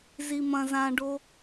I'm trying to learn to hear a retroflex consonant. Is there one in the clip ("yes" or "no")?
yes